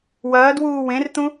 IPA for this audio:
w ɐː d w uː w ẽ r t̪ ũ

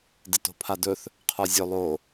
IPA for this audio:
d ɪ t o̤ pʰ a d ɵ θ | qʰ ə˞ zʲ ɵ lˠ o

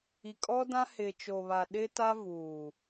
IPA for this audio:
i˨ kʼ ɔ˦ d ã˦ h ɪ˨ t͡ʃ o˨ β a˨ ɗ ɪ˦ t a˦ v uː˨

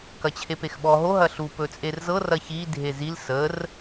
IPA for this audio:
k ɐ t͡ɕʰ e p e x ɓ ɔ ɦ o ɦ ɐ ɬ u p ɵ t͡sʼ e r z ɤ r ɐ ç i dʱ e z i l s ə r

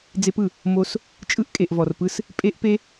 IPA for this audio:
d͡z e˦ p ɯ˨ | m o˦ s | t͡ʃʼ ɯ˧ ʔ kʼ e˨ ʔ v ɔ˨ r p ɯ˧ s | pʼ e˦ ʔ p e˦

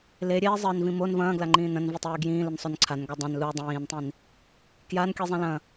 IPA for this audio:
l e ɾʲ eː zˤ ɘː n v ĩ m o n v ɐ̃ː ɡ l a ŋ͡ǃ ĩː n ɐ̃ n v i tˤ eː ɡ j ĩː l ɨ n sˤ o n ǀʰ a n ɡ a dˤ ɐ̃ n l u dˤ ĩː n tˤ ĩ n | k j a n kʲ ɨ zˤ ɐ̃ l ɐ̃

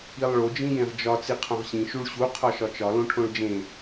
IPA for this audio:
i lˠ ɭ o d͡ʒ ĩ j ẽ ʁ d͡ʒ ɒ t͡s i qʰ õ ʁ ɕ ĩ ʃ u ɭ ɕ u qʰ ɒ ʃ ɒ t͡ʃ ɒ l õ ʈʰ õ ɭ d͡ʒ ẽ

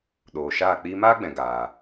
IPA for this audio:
ɗ oː˨ ʃ aː˦˨ k͡p iː˧ m aː˦ ɡ͡b ɛ̃˨ ɡ aː˨

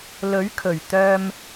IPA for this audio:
l ɵ˨˥ ɥ kʰ ɵ˨˩ ɥ t̪ œː˧ m

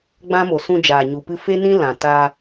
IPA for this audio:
ɡ͡b ã˦ m o˨ s ũ˧ d͡ʒ aː˨ ɲ u˨ p ɨ˧ f e˦ n ĩ˦ l ã˨ t a˧

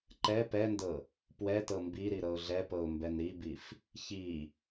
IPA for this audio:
ǃ ɛ p ɛ n d ɤ | p w ɛ t ɤ m b i ɾ i ɾ ɤ ʊ̯ ɮ ɛ p ɤ ʊ̯ m b ɛ n ɾ i b i f | ç i

